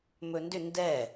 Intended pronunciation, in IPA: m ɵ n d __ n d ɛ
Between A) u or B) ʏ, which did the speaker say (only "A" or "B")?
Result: B